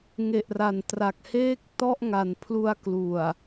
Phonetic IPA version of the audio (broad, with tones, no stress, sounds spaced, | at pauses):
ŋ e˨˩ ʔ r a˨˩ n t r a˨˩ k̚ h eː˥˩ k̚ t ɔ˥˩ ʔ ŋ a˨˩ n pʰ l u˧ a̯ k l u˨˩ a̯